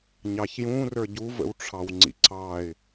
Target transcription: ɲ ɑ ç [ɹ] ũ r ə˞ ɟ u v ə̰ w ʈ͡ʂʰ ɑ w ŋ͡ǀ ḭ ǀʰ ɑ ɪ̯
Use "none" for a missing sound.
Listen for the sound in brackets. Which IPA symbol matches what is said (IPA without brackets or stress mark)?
j